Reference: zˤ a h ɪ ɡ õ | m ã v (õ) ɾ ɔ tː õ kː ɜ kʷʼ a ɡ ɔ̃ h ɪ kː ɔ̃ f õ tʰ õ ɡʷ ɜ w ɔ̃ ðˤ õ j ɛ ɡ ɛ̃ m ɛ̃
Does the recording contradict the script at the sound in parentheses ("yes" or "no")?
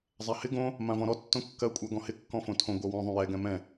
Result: yes